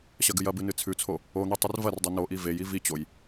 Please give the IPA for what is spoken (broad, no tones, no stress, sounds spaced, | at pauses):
ɕ ɐ ɡ ɨ j ɐ b ɨ n ɨ t͡sʰ ʉ t͡sʰ o | o n̪ i tˤ ɨ r v ɐ r dˤ o n o ʔ i v e j i v i t͡ɕ o j